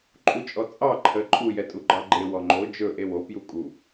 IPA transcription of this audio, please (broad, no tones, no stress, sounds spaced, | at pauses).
ǃʼ u t͡ʃʼ ɔ t͡sʼ ɑ ǃʰ ə ǃʼ u j ɛ tʼ u ɡ͡ǃ ɑ ɡ͡ǃ e w ɔ ŋ͡ǃ o d͡ʒ ɵ ʔ e w o p j u kʼ u